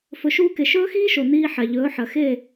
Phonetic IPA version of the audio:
f ɵ˨˦ ʃ uː˧ k e˨ ʃ ɵː˦ x iː˦ ʃ o˨ n iː˧ ħ a˨ ʎ ɵː˨˦ ħ ɐ˨ x e˦˨

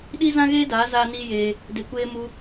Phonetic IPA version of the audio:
ɗ i˦ z ã˦ ɣ eː˦ d aː˨˦ z aː˦ n iː˦ j eː˧ | d e˧ kʷ eː˦ m u˧

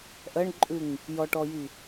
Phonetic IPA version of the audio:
ʔ ɜ ɳ ǃʼ ʉ ŋ | j ɔ ʈ ɔ j i

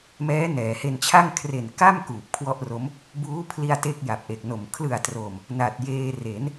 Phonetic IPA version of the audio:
m ɛː˦˥ n ɛː˩˦ h e˧ n t͡ɕʰ a˥˩ ŋ kʰ r e˨˩ n k a˥˩ m k uː˨˩ p̚ kʰ w ɔ˥˩ ʔ r o˦˥ m | b uː˦˥ pʰ l i˧ a̯ t e˥˩ k̚ j a˨˩ p̚ ʔ e˨˩ k̚ n o˨˩ m kʰ l ɯ˨˩ a̯ t r o˨˩ m | n a˨˩ t̚ j eː˧ r e˩˦ n

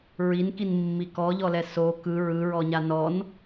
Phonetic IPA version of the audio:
ɹ i n k i n mː i k ɔ ʎ ɔ l ɛ s o k ɯ ɹ ɯ ɹ ɔ ɲ a n ɔ n

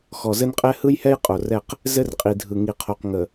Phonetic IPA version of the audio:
x ɔ˨ z ɘ˦ n qʼ ɛ˦ h ɯ˦ j h ɛ˦ j qʼ o˨ r ɛ˦˨ q | z ɘ˦ r qʼ i˨ dʱ ɯ˨ ŋ i˨ qʰ o˨ q ŋ ə˨

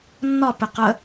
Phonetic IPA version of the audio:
nː ɒ p ɪ q ə

